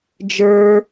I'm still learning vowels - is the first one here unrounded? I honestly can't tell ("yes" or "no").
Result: yes